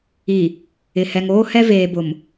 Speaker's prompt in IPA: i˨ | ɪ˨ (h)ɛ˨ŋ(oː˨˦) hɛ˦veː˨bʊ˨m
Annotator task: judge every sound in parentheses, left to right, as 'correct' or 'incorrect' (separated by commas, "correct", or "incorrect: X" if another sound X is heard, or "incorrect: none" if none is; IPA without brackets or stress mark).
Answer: correct, incorrect: oː˦